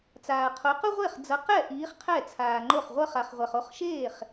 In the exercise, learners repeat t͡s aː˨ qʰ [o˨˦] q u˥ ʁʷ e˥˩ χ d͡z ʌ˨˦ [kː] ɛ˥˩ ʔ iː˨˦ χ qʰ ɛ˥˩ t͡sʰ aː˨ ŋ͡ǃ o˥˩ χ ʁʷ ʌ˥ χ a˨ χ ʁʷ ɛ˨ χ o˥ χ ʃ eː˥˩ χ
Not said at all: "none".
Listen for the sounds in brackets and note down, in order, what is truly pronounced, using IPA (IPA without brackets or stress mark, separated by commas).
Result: o˨˦, q